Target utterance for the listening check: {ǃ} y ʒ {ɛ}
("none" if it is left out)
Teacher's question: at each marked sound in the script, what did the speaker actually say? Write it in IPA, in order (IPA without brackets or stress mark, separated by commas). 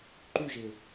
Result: ǃ, e